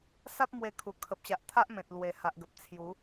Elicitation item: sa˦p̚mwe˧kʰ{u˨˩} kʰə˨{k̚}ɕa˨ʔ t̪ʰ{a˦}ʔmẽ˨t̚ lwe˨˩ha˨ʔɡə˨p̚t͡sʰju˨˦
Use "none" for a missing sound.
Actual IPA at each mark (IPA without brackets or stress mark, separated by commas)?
u˨˩, p̚, a˦